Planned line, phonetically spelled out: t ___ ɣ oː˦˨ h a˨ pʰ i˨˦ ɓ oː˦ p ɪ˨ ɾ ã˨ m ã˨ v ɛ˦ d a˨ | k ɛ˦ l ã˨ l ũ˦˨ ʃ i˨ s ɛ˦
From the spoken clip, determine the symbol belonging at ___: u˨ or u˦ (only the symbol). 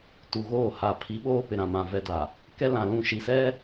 u˨